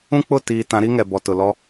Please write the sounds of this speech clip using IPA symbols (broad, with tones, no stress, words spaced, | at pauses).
ũ˦k͡pʊ˦˨ tiː˨ tã˨˦ɾi˦ŋɛ˨bɔ˨ tʊ˨lɔ˦